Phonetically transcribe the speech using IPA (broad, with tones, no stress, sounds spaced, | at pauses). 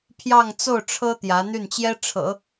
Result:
pʰ j ɑ˥˧ ŋ t͡s o˥˩ ʊ̯ ʈ͡ʂʰ ɤ˥ t̪ j ä˧˥ n̪ y˥˩ n t͡ɕ j ɛ˥ ʈ͡ʂʰ ɤ̰˨˩˦